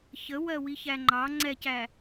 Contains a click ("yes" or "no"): yes